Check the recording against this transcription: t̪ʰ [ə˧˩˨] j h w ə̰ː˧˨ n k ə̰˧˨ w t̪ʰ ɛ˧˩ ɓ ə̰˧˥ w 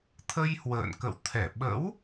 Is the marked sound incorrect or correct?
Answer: incorrect